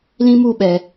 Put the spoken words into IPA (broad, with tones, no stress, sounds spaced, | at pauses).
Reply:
l ĩ˦ m u˦˨ ɓ ɛ˨